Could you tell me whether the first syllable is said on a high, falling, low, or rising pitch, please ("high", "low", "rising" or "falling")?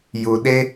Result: low